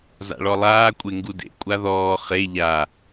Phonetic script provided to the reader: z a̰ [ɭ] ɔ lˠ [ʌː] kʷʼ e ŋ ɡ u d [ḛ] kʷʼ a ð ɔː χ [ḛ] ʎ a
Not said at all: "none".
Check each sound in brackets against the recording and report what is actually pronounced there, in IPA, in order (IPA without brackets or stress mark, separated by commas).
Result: ɭ, aː, ḛ, e